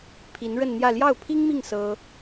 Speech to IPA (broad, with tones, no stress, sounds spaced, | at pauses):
pʰ i˧˥ n ɻ ə˥˧ n n̪ j ä˥˧ l j ɑ˥˩ ʊ̯ pʰ i˥ ŋ m i˥˩ ŋ s ɤ˥